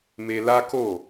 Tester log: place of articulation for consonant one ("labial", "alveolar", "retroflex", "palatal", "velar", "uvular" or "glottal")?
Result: labial